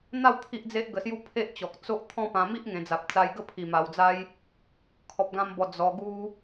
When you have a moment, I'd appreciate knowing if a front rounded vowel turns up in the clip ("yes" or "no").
no